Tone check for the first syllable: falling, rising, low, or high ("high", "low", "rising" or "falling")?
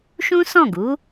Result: high